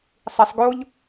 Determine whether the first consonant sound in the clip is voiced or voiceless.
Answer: voiceless